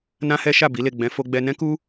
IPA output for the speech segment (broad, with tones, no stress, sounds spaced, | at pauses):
n ã˦ h ɛ˦ ʃ a˦˨ b i˨˦ l e˦˨ ɡ͡b ɛ̃˨˦ f o˧ ɡ͡b ɛ˧ n ɛ̃˦ k u˦